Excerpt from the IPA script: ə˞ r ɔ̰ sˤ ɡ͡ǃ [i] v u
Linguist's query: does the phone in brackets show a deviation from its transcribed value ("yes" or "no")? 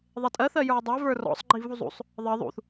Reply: no